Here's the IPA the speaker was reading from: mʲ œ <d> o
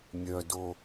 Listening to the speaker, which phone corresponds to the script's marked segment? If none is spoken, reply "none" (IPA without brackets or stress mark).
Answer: d